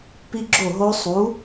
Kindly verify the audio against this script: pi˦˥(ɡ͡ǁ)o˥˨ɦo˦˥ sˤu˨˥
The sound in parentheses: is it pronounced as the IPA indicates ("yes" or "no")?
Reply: yes